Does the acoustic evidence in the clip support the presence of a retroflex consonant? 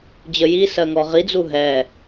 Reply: no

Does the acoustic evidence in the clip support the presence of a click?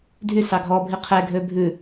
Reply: no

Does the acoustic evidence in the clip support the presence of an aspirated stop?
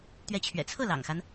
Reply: yes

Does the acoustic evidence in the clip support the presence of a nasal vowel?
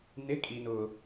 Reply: no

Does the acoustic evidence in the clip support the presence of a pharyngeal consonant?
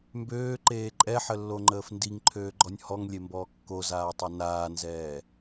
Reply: yes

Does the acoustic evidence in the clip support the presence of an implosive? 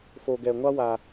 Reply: no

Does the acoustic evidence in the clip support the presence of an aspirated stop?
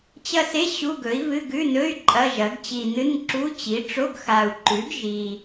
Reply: no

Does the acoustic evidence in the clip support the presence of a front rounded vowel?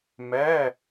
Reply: no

